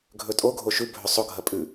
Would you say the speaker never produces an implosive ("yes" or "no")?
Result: yes